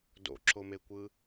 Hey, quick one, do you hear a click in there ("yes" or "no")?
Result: yes